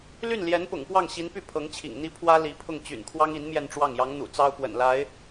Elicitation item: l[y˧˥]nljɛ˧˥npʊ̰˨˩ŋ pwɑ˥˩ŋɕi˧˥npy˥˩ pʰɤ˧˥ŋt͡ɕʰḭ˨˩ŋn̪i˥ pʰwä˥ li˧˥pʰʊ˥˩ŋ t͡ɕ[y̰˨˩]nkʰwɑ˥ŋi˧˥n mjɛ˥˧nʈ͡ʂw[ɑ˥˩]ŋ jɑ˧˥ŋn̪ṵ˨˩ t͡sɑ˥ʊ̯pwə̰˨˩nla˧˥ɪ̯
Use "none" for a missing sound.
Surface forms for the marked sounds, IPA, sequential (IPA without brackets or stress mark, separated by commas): y˥˩, y̰˨˩, ɑ˥˩